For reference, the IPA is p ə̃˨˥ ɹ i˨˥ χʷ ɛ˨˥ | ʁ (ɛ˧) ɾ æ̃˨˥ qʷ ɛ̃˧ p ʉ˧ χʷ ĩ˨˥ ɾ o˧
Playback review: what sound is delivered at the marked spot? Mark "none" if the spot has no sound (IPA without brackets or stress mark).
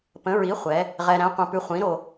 ɛ˧